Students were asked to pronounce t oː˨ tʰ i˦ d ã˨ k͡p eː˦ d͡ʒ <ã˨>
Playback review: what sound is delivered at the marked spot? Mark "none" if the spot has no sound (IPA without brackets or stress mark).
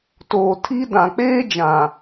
ã˨